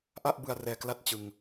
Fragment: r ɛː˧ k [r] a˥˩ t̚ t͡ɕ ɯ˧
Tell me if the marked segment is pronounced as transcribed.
no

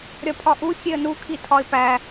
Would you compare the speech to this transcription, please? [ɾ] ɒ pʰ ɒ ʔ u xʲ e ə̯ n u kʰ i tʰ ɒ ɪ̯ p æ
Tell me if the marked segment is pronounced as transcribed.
no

